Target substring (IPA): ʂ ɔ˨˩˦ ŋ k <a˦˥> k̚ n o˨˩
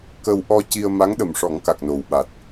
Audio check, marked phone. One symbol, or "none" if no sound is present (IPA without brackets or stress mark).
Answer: a˨˩